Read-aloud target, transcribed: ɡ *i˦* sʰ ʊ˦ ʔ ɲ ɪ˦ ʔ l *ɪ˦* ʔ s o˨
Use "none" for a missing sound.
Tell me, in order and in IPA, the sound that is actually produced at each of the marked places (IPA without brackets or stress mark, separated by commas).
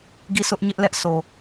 i˦˨, ɛ˦